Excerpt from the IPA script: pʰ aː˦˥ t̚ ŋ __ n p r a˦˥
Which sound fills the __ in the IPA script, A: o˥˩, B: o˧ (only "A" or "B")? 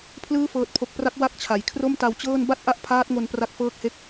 B